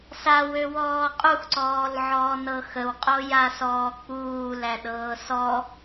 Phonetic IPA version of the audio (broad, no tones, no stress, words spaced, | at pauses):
sawøwɔː qʼuxǀɔːlʕɔːnɤ xəwqʼojasɔː k͡puːlæɗɤː sɔ